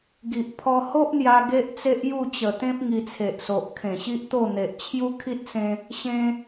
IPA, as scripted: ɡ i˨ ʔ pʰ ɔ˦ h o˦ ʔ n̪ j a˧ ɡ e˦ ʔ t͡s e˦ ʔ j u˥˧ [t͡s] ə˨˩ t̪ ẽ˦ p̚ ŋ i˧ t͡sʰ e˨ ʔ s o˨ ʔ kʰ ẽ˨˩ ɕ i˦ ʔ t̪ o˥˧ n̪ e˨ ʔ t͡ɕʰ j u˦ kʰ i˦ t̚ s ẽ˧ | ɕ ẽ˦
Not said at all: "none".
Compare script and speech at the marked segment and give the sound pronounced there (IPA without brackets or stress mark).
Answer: t͡ɕ